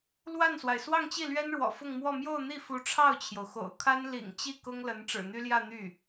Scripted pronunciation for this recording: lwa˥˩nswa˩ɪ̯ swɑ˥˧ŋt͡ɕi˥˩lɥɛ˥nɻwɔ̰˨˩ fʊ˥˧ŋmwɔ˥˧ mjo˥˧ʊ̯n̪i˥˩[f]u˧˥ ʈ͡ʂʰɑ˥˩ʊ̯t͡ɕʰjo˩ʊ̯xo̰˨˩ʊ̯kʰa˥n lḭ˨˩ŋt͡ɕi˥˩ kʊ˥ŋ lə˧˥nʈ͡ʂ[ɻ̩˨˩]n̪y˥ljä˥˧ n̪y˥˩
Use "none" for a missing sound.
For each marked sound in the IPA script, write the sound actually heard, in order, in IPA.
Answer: f, ɻ̩˨˩

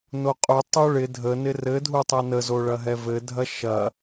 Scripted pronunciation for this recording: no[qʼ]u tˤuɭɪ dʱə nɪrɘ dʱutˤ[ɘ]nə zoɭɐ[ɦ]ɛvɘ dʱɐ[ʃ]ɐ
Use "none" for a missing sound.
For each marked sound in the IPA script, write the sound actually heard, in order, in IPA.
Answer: qʼ, ɛ, ɦ, ʃ

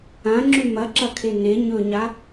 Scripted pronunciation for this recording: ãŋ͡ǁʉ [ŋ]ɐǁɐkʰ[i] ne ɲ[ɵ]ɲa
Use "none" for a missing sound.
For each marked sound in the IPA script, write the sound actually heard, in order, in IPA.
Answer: m, e, ɵ

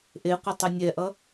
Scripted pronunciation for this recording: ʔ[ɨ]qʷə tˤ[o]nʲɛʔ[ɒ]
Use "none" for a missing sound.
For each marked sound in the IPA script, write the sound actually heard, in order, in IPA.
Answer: e, u, ʌ

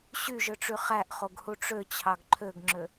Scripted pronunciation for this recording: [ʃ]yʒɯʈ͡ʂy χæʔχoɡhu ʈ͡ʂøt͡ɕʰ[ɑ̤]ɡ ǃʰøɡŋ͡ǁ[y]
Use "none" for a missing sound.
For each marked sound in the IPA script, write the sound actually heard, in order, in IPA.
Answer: ɕ, ɑ, ø

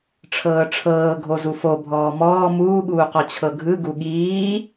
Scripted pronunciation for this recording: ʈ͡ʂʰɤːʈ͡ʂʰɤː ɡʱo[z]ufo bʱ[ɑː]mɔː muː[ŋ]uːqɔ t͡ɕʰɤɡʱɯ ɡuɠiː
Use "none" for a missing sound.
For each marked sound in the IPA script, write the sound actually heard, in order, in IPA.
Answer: z, ɔː, ɠ

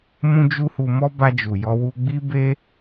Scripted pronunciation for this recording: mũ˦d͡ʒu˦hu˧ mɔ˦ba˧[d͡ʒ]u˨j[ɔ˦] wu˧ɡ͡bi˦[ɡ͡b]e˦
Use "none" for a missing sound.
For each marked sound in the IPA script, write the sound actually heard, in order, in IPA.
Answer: d͡ʒ, ɔ˧, b

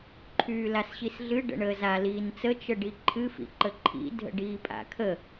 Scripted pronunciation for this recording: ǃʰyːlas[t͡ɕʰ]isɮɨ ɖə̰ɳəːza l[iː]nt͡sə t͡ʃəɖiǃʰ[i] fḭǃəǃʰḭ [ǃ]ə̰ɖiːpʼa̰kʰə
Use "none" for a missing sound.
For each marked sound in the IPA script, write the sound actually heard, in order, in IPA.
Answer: ɕ, iː, ɨ, dʱ

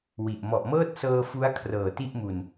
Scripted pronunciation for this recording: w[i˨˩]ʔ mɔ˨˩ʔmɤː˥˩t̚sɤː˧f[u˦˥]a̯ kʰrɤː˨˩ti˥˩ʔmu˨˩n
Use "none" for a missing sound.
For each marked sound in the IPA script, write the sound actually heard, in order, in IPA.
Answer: i˨˩, u˦˥

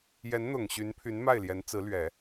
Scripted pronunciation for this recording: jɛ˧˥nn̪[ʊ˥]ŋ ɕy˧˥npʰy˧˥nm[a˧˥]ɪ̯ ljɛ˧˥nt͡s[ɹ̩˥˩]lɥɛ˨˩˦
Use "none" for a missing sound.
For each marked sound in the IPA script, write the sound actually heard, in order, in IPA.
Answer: ʊ˨˩, a˥˩, ɹ̩˧˥

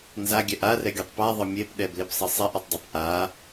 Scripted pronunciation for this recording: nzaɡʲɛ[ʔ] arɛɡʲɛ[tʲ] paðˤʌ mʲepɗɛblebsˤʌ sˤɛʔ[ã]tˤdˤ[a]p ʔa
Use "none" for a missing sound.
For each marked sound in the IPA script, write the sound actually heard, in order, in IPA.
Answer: ʔ, tˤ, a, a

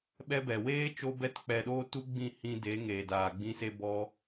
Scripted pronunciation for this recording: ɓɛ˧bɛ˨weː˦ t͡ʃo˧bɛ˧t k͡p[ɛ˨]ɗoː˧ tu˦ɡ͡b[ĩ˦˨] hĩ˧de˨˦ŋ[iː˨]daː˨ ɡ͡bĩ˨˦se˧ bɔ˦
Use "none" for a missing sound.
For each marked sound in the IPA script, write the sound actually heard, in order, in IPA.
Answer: ɛ˨, ĩ˦˨, eː˨

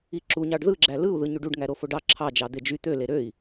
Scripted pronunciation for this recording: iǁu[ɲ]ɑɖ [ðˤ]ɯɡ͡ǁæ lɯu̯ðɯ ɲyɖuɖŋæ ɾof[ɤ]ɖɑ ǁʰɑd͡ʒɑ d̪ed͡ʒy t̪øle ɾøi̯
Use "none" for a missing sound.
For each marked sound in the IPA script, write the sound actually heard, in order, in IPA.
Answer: ɲ, ð, o

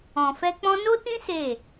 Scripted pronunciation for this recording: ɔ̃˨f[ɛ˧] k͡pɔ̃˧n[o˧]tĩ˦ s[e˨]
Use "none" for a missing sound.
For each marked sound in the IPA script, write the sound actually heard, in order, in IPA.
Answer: ɛ˧, o˦, e˦˨

